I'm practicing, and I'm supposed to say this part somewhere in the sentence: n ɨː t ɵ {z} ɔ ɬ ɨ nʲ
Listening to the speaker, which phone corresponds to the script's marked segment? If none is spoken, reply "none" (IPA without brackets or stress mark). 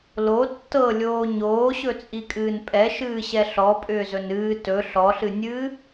ɬ